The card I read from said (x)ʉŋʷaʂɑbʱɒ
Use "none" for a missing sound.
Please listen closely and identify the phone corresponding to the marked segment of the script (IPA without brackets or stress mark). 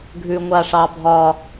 ɡʱ